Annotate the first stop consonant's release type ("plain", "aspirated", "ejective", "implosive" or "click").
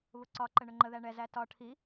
click